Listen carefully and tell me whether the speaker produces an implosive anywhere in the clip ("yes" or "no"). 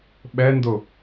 yes